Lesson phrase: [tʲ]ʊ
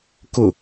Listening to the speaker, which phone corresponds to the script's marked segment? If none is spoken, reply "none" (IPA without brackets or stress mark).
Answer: k